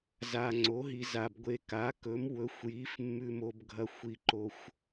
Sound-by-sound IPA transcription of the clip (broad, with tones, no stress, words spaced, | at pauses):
za˨ŋ͡ǀo˩˥ɦi˨za˨b ɡʷe˨ka˩˥kɵ˩˥m wɵ˩˥xʷji˩˥fmːʉ˨ mo˨bɡʱɐ˨ xʷi˨ǃo˨xʷ